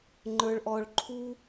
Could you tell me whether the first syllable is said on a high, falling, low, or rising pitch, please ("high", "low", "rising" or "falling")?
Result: high